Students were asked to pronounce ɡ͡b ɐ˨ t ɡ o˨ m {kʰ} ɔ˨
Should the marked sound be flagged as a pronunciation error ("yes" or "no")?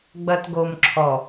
yes